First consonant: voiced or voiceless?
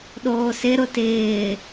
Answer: voiced